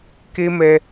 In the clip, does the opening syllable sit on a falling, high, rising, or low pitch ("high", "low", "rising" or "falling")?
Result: high